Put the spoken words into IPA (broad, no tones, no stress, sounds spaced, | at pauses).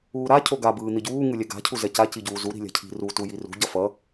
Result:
uː ɾ a cʰ o ɡ a b ɯː n̪ i ɟ uː ŋ ɯ lʲ ɛ ɡ a̤ cʰ u z ɛ c a c i ɟ uː z u ɾ i̤ lʲ a̤ cʰ i̤ r u t u j i r ṳ ɟ ʌ f ʌ